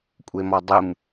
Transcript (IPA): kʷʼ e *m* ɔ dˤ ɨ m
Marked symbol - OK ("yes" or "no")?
yes